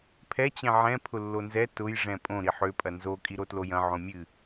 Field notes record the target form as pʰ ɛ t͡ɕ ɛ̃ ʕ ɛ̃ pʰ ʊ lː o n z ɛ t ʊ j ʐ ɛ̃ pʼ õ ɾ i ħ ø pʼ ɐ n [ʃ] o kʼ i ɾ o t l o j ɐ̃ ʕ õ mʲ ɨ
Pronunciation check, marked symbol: incorrect: z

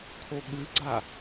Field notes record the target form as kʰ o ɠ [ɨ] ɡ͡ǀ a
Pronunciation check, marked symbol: correct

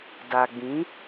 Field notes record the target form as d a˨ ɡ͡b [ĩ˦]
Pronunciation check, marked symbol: incorrect: ĩ˨˦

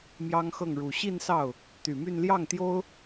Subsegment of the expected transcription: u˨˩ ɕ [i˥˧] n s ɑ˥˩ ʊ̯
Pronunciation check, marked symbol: correct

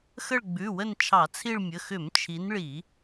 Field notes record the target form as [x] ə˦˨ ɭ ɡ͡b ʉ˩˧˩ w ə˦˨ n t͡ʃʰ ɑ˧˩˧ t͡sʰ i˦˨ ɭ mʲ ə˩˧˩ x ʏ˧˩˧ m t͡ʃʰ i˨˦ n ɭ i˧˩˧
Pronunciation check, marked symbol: correct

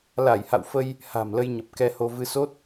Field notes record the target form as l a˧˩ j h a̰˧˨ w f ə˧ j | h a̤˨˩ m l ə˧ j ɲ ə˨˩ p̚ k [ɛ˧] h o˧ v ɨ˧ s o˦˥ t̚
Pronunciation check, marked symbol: correct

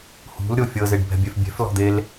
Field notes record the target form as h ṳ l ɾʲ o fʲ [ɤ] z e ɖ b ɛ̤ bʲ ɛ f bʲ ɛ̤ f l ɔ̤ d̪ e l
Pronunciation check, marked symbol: correct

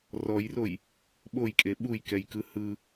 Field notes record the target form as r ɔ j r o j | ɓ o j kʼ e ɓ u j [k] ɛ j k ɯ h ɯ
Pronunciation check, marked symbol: correct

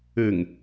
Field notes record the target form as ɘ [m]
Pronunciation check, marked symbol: incorrect: ŋ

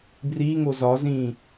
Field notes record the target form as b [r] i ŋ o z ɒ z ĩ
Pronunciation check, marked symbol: correct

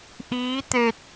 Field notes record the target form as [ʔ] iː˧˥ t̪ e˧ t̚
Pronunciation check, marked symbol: correct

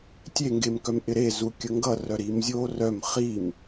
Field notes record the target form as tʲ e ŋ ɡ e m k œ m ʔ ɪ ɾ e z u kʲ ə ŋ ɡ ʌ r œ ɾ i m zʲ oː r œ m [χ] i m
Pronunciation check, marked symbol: correct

